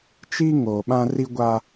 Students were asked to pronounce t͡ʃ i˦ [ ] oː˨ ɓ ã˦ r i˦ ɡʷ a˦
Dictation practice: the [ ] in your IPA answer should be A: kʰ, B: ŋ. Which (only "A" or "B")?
B